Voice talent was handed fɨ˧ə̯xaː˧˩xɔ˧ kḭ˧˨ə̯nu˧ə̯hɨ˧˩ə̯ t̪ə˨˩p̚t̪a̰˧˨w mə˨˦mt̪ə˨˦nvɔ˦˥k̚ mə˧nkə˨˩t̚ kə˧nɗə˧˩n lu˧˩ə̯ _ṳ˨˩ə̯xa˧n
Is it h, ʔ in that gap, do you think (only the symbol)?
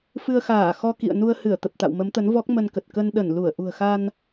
ʔ